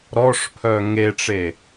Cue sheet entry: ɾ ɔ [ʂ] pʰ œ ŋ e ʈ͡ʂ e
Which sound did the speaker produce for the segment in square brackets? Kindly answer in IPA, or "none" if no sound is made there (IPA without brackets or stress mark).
ʂ